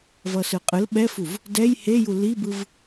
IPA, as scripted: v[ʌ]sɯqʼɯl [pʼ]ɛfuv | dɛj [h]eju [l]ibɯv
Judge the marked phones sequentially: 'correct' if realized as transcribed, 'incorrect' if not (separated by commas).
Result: correct, incorrect, correct, correct